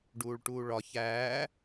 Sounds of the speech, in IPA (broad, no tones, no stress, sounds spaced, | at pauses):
ɖ uː ɭ ʈ uː ɭ ɒ ç æː